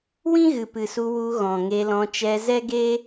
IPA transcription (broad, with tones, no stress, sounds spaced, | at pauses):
w ĩ˦ ɣ ɨ˨ p ɨ˨ s u˧ w u˧ ɣ ɔ̃˨ ŋ e˧ l ɔ̃˧ t͡ʃ ɛ˧ z ɛ˦ ɡ e˦